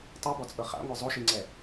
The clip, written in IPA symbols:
tˤ u b ɔ t͡sʼ ɤ χ a̰ ŋʷ ɛ zˤ o ʃ i ŋ͡ǀ ɛ

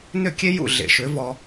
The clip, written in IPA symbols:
n ʏ˦˨ kʲ e˦ j ṵ˦˨ ɮ ḛ˨ ʃ ʏ˨˦ v ɔ˧

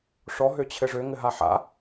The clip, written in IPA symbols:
ʂ ɔ ɦ ø t͡ɕʰ ɘ ʐ ø ŋ ɘ ɦ a ħ a̰

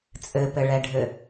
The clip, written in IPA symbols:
t͡sʼ ɘ p ɘ ɭ ɛ ɖʱ ɘ

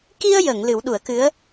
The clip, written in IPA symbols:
k i˧ ə̯ j ə˨˩˨ ŋ l ɨ˨˩˦ w ɗ u˨˩˦ ə̯ k ɨ˧˥ ə̯

